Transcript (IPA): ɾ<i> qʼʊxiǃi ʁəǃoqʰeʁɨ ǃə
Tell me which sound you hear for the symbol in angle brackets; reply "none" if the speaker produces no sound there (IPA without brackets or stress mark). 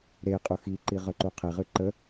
e